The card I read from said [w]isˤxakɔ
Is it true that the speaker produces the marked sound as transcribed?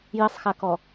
no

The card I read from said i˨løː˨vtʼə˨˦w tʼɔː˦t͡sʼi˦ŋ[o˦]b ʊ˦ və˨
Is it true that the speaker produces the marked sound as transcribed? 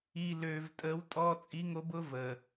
yes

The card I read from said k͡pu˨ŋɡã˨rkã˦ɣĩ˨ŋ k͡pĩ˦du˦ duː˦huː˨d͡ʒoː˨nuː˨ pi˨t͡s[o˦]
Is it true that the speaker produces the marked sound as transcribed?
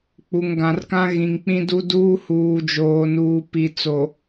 no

